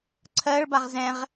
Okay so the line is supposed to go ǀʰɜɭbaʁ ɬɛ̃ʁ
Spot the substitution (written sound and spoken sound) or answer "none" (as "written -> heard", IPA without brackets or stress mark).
ɬ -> z